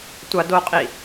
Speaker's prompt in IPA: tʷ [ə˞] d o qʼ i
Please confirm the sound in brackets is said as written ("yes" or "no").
no